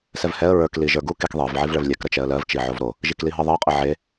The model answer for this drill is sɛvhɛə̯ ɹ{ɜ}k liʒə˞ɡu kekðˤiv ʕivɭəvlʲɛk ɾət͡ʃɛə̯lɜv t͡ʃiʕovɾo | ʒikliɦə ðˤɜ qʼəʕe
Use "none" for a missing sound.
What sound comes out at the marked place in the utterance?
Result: ə˞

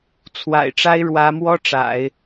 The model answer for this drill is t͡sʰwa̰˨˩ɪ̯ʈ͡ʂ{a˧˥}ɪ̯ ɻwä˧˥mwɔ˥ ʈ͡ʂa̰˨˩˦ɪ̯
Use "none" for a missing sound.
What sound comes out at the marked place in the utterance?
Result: a˥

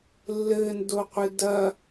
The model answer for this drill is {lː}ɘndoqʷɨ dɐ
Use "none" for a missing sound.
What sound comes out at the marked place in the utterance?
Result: lː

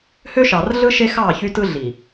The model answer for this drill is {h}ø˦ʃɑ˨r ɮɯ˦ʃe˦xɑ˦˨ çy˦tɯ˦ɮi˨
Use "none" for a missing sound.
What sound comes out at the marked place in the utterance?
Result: h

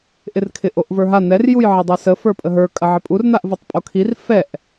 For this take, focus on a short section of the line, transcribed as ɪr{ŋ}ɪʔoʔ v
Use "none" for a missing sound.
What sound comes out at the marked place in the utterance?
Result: kʰ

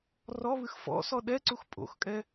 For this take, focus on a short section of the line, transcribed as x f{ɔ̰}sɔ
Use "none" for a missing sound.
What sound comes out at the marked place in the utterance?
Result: ɔ̰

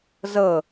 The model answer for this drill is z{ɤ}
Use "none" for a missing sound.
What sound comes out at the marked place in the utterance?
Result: ɤ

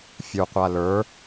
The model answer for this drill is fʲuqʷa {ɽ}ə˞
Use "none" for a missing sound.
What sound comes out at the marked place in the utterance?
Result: l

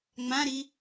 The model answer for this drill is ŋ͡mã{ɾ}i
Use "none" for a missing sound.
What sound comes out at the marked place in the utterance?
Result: ɾ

